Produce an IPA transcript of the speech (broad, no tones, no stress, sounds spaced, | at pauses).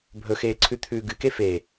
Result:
bʱ ɵ x eː ǀʰ ʉ t̪ʰ ʉː ɡ ɨ k e f e